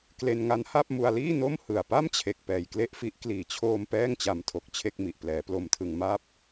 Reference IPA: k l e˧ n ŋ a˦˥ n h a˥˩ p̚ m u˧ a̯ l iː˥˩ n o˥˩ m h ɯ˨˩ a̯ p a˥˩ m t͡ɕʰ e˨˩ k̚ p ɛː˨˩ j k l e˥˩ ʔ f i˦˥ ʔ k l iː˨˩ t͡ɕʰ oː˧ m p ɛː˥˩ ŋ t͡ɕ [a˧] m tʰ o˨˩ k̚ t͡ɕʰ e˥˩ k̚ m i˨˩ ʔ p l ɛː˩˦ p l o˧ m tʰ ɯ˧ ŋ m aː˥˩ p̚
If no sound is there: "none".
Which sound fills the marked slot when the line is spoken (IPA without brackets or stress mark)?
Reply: a˧